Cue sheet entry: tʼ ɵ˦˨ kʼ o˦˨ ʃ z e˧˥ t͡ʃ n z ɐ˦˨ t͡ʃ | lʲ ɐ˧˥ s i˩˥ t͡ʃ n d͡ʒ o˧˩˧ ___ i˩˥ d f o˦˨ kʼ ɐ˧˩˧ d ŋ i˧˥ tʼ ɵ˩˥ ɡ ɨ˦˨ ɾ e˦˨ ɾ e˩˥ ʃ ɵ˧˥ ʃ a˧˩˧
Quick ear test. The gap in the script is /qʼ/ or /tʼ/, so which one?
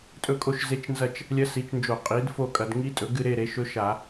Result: qʼ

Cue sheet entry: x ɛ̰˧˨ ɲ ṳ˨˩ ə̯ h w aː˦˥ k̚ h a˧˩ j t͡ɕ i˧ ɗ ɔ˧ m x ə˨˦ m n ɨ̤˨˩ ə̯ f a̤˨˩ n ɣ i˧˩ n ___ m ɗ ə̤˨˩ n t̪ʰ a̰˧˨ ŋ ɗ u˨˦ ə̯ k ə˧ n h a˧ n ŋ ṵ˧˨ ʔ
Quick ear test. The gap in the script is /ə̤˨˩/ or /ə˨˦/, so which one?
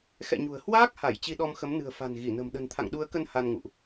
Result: ə̤˨˩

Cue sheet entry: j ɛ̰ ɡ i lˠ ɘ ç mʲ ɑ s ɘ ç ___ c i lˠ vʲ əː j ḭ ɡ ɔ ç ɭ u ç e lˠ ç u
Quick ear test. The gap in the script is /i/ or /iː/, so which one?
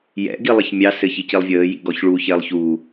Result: i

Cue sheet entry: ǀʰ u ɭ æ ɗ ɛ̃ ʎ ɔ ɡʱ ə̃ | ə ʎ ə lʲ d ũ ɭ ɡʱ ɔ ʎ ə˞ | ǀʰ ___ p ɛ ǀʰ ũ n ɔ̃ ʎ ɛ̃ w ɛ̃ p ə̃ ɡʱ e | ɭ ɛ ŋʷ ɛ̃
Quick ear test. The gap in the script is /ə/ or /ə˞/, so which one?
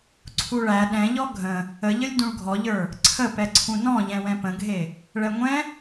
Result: ə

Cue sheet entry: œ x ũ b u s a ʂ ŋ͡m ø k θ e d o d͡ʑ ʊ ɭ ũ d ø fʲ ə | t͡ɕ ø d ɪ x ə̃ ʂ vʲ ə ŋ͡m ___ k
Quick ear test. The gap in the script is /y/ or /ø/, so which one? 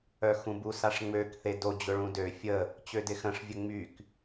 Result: y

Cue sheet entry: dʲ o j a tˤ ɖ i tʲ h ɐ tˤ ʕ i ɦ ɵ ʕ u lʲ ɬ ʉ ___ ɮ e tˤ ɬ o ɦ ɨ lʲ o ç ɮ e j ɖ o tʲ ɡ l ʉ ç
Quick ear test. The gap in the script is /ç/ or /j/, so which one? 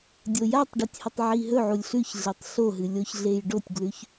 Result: ç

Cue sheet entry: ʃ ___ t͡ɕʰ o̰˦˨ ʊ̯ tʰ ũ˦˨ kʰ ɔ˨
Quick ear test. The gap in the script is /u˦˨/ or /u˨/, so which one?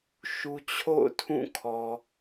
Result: u˨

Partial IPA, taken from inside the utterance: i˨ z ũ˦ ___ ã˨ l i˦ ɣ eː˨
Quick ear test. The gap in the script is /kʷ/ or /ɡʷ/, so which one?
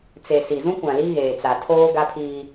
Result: kʷ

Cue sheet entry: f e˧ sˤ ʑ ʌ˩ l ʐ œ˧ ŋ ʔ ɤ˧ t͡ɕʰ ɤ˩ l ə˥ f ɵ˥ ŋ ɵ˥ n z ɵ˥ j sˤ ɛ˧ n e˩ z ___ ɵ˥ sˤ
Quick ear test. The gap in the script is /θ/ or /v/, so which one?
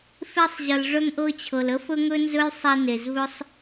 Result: v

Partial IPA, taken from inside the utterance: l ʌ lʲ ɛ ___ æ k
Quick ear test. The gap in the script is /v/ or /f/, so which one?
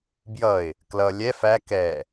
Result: f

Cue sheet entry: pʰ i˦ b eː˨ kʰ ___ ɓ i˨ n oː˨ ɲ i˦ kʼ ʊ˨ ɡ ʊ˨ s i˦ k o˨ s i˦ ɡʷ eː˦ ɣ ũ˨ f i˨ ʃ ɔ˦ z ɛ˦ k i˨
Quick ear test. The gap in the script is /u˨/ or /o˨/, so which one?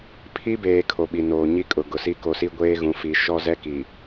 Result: o˨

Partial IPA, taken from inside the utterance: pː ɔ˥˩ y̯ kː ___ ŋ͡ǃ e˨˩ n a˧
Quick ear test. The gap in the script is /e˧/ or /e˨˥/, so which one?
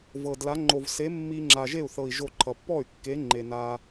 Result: e˨˥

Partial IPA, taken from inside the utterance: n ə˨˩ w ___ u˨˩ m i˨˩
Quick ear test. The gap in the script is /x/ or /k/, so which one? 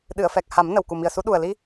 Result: k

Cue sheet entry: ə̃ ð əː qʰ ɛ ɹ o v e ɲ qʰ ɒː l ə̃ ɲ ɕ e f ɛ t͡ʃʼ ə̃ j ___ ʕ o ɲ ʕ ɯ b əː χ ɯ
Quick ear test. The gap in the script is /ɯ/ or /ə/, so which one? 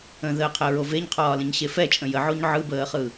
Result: ə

